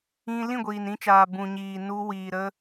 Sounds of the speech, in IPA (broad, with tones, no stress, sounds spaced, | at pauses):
ĩ˧ l ĩ˦˨ ɡʷ iː˨ n ĩ˧ t͡ʃ aː˨ b ũ˨ ɲ iː˨ n u˧ w iː˨ ɾ ə˧